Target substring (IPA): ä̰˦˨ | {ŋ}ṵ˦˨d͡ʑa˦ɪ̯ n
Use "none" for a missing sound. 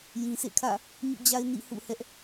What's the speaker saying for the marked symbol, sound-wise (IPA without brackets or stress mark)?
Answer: ɲ